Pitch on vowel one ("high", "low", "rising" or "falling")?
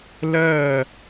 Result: falling